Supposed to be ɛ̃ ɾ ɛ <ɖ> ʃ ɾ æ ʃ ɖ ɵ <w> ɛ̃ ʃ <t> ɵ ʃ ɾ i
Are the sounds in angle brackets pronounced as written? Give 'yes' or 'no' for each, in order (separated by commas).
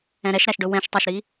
no, yes, no